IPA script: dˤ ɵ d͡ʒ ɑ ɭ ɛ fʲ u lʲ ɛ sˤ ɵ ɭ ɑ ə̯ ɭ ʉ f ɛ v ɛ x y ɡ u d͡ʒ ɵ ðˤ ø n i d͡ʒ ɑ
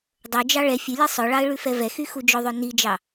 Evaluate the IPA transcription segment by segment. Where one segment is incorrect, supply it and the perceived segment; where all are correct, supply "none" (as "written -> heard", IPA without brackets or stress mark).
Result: ɡ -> x